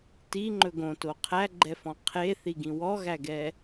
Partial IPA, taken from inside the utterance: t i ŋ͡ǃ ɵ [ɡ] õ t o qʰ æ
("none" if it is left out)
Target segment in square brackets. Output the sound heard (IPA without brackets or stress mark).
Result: ɡ